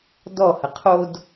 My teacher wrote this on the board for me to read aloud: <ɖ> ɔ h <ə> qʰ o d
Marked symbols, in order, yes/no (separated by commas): no, yes